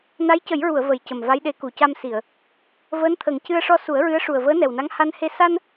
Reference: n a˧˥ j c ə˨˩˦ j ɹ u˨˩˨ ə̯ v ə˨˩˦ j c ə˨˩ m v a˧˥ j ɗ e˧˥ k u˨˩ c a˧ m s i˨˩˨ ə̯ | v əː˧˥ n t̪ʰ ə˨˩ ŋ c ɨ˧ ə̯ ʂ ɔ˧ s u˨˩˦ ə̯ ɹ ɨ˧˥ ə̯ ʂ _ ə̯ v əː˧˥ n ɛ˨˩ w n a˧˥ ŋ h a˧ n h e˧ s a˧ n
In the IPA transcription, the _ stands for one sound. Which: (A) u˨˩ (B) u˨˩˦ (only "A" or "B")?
A